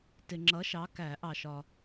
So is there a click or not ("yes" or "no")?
yes